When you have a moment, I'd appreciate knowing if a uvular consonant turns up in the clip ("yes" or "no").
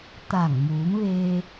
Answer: no